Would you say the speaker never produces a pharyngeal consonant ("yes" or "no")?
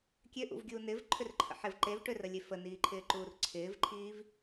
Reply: no